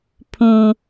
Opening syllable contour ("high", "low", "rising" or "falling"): low